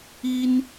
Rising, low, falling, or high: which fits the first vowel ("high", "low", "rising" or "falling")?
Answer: high